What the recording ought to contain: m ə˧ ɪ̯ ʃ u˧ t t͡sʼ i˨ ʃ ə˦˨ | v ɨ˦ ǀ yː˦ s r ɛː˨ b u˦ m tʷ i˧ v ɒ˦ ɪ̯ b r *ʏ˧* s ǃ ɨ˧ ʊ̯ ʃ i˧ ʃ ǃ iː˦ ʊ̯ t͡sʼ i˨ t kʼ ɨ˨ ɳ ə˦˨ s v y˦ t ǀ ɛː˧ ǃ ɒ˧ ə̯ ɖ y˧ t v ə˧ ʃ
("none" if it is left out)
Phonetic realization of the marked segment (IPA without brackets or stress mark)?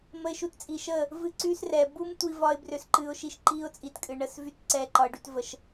ʏ˧